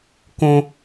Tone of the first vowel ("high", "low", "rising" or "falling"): high